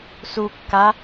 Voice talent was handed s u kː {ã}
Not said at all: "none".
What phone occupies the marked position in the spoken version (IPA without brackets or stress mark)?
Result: a